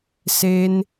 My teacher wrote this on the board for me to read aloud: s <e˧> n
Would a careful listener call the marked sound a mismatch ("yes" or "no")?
no